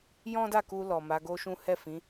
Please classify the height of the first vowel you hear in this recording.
mid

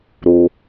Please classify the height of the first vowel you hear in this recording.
high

